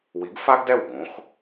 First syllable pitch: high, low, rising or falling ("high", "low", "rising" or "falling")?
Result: rising